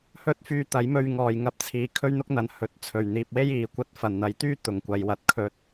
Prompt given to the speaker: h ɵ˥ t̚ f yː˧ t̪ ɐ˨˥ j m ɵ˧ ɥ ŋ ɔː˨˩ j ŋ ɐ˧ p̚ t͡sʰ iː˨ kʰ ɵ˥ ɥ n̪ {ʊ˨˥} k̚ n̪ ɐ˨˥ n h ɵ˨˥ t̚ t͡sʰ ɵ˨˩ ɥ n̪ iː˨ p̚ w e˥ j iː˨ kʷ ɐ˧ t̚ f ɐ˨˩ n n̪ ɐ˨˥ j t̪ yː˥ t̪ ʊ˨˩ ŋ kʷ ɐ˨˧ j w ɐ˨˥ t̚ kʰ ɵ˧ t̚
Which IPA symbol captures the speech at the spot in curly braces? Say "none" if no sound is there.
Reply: ʊ˥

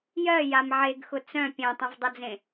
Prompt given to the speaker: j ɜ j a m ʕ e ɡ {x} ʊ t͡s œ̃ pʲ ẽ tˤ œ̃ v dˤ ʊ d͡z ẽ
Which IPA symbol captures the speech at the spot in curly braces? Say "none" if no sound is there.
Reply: x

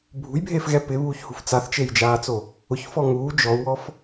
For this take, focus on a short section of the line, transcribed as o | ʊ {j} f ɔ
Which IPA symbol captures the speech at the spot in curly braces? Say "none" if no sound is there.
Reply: ç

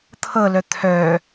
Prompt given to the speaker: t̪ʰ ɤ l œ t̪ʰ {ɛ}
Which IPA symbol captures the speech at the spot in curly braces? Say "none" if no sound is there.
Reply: œ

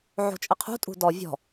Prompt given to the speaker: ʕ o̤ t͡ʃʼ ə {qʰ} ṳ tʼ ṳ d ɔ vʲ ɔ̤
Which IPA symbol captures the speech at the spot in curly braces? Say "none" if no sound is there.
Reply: qʰ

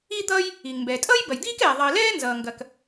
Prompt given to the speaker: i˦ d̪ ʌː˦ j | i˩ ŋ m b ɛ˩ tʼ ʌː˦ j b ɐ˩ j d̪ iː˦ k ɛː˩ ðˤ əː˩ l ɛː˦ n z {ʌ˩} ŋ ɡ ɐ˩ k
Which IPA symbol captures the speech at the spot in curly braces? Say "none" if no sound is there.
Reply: ʌː˩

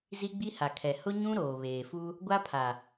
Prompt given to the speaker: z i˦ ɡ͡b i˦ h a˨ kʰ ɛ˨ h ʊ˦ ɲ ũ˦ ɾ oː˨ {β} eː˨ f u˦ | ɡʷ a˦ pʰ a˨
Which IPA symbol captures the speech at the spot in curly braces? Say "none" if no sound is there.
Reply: β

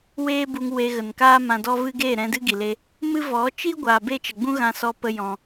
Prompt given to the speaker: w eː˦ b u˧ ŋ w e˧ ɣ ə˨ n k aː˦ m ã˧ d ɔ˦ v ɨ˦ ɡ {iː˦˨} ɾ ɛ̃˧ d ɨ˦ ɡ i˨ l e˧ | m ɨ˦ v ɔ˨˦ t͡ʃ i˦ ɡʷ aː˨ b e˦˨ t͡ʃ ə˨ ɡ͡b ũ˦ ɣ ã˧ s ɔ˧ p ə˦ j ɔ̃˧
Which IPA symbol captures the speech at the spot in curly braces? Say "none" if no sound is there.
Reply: eː˦˨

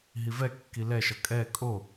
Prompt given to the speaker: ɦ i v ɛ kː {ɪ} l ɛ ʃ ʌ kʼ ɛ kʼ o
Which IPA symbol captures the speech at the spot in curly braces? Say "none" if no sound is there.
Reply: i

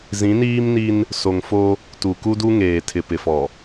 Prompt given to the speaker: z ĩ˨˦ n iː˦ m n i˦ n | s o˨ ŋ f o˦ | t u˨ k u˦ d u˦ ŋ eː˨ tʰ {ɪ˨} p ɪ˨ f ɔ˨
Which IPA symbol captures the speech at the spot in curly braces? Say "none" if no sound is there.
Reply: ɪ˨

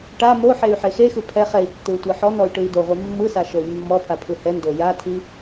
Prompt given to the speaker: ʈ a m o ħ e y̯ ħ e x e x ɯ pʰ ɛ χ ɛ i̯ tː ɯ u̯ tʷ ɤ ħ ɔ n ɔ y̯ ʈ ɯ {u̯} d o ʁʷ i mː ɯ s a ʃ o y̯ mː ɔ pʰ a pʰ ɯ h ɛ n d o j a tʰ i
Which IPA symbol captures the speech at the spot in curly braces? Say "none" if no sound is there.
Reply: i̯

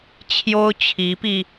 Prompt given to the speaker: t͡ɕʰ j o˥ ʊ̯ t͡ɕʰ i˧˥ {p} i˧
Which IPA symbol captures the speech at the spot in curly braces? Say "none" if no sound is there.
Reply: p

